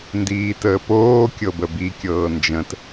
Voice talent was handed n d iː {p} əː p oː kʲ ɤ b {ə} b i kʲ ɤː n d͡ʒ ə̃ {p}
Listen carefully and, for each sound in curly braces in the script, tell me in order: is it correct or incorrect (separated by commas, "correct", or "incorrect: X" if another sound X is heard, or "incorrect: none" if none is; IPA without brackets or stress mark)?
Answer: incorrect: t, correct, incorrect: t